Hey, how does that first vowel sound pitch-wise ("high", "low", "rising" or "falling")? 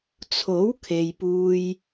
rising